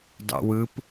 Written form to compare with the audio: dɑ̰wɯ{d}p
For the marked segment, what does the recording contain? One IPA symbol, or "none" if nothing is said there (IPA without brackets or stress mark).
none